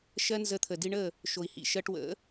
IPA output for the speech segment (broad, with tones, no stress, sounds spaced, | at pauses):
ʃ ɜ˦ n z ə˧ t̪ʰ ə˨ d i˧ ɳ ə˦˨ | ʃ o˨ i̯ h ḭ˨ ʃ ɜ˧ ʈ w ə̰˨˦